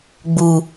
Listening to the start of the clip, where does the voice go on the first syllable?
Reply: low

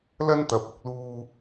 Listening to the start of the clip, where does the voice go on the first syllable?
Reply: high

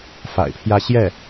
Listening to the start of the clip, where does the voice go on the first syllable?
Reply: low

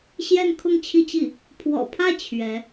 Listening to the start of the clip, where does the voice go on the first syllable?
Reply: falling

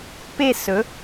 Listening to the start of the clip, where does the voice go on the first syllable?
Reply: falling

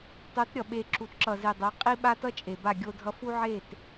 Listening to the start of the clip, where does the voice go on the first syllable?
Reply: rising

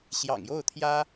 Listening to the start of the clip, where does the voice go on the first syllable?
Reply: low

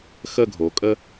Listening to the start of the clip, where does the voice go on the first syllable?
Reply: falling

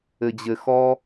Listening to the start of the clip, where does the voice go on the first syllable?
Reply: low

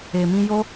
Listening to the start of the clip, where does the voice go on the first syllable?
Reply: low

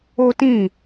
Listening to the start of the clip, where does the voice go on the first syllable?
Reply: high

